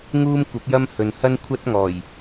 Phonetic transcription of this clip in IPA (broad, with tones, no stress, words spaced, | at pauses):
ŋuː˥mkʷɐ˨˥p̚jɐ˥m hɵ˨nhɐ˥n kʷʰɐ˥t̚ ŋɔː˨˩j